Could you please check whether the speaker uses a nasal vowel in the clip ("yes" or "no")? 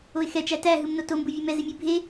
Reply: no